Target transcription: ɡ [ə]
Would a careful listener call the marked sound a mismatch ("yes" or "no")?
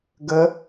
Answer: no